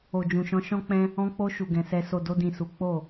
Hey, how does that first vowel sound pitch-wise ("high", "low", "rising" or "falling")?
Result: low